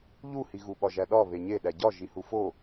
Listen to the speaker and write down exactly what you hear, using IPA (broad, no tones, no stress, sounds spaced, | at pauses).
ʎ u h i ɣ u ɓ ɒ ʒ æ ɗ ɒ β e ɲ e ɗ æ ɟ ɒ ʒ i h u f o